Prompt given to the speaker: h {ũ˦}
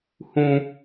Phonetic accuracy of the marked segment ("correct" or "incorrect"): correct